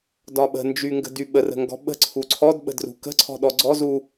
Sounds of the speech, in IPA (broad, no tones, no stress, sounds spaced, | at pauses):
d ɒ ɓ ə̤ n d͡ʒ y ŋ ɡ ə̤ d y ɓ ə r ə̤ ŋ ɡ ɔ̤ ɓ ə̤ ǀʰ u ǀʰ ɔ d ɓ ə̤ d r ṳ k ə̤ ǀʰ ɔ̤ ɗ ɔ ɡ͡ǀ ɔ z u